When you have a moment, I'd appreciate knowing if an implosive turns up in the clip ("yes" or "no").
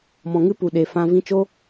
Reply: yes